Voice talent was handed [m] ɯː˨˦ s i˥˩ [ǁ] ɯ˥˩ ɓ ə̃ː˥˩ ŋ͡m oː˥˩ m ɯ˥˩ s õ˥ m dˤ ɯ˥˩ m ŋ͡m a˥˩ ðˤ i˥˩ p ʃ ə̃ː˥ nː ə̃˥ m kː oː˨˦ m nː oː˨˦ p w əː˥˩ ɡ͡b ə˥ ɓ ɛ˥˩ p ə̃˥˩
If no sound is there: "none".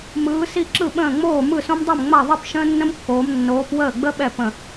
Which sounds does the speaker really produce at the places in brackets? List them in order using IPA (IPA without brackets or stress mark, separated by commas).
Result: m, ǁ